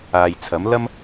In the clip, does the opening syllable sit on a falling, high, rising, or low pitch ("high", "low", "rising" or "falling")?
low